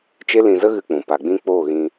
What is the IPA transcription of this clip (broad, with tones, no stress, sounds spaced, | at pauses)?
t͡ʃ e˦ l ĩ˧ z ə˦ ɣ ɨ˧ k͡p ũ˨ p a˨ ɡ͡b ĩ˧ k͡p oː˦˨ ɣ ĩ˧